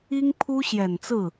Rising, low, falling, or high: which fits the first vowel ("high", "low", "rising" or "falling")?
high